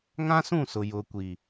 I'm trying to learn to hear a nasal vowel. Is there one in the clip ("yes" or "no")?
yes